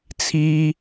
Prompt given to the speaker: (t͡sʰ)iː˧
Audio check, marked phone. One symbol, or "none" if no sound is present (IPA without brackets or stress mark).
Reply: t͡sʰ